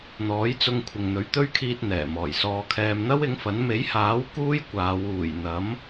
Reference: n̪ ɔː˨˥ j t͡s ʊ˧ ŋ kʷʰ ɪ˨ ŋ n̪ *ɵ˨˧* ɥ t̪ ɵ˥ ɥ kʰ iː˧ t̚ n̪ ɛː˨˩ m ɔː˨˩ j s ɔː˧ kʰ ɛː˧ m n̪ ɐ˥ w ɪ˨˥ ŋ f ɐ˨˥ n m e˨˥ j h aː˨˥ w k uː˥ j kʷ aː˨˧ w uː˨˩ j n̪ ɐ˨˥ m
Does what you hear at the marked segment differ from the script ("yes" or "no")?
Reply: yes